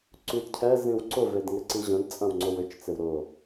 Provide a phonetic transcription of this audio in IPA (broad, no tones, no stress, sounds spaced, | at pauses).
ǀ y d cʰ ɛ z ĩ w ǀ ʊ v e d ŋ ɪ ǀ i ʑ ə̃ d t͡sʼ ɐ̃ w ŋ͡ǀ o w ʏ t͡ʃ t͡s ɪ w ɾ ʊ